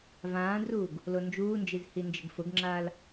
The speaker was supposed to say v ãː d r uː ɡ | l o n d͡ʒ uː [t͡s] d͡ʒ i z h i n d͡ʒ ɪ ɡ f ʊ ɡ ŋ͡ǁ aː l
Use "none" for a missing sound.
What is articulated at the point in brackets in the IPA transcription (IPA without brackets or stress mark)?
n